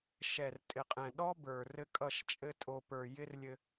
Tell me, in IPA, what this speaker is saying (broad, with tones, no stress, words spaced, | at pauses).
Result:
ʃɛ˨rtʼɪ˨qʼɛ̃˨ ɗɔ˦bə˞˨ rɘ˦kʼʌ˦˨ʃ t͡ʃʼɘ˦ tʼo˦ pə˞˨jɪ˦rlʲɘ˦